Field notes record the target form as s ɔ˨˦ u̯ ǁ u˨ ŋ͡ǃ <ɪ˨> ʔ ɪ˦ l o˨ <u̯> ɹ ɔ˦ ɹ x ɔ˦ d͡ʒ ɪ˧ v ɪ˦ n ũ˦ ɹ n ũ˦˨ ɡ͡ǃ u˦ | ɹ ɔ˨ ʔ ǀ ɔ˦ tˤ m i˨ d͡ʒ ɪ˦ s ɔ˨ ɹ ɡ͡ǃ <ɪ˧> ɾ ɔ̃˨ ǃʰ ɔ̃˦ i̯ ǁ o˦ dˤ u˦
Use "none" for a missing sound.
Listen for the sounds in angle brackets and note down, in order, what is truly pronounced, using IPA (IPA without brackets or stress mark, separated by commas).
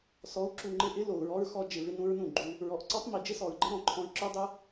ɪ˧, u̯, ɪ˦